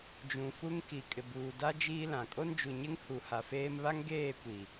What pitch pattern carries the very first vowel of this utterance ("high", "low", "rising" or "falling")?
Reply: low